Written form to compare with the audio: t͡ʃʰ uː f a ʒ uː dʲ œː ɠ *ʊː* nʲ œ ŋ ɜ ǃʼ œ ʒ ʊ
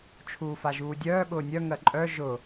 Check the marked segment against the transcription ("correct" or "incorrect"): correct